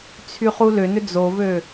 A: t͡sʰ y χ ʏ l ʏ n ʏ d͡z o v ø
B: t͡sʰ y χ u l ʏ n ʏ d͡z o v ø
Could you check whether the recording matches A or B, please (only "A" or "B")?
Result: B